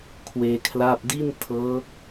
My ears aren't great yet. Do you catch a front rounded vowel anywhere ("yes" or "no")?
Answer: no